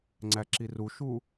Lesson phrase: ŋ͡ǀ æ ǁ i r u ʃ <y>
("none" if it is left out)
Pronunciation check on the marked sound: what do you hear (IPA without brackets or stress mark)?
u